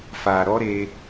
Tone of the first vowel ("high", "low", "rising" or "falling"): low